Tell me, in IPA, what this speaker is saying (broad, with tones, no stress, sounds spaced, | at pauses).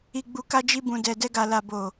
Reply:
i˨ ɡ͡b u˨ k a˧ d͡ʒ i˧ b ũ˨ d ɛ˨ d ɛ˧ ɡ a˨ l a˨ b o˨